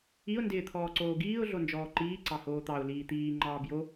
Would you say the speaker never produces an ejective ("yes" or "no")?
yes